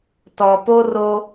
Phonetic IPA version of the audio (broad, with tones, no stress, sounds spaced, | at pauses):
t ɔ˨ p o˦ r o˦